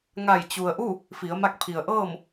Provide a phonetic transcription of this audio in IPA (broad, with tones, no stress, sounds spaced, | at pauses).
ŋ a˧˩ j t͡ɕ u˩ ə̯ ʔ u˥˨ | f i˩˧ ə̯ m a˧ k̚ pʰ i˩ ə̯ ʔ ɤː˥˨ m